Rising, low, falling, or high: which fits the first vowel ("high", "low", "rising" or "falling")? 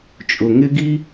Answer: low